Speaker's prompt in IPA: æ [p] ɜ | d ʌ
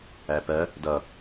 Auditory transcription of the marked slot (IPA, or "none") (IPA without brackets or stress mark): p